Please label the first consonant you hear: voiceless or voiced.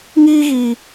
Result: voiced